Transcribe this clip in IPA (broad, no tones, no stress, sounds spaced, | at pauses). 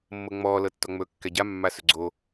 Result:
mː ɤ ŋ͡m ɔː l ɤ tː ɔ ŋ͡m ɵ kː ɛ ɟ a mː a s ɵ ɡ͡ǀ o